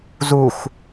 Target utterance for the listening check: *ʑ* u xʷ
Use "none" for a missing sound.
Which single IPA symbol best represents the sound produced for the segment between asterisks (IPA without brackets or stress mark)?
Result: z